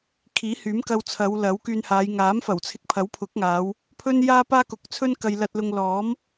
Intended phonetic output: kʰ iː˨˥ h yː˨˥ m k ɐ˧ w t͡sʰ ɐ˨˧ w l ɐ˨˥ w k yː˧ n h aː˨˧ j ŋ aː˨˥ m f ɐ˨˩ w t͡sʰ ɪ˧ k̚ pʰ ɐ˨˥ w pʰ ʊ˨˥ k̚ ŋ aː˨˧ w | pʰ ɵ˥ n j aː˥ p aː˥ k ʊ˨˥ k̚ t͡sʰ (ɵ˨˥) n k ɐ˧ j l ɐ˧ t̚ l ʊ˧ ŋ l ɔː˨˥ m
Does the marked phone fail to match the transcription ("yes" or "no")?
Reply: yes